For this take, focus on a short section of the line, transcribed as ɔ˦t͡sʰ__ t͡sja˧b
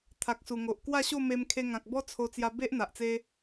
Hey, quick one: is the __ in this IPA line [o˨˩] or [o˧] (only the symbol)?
o˧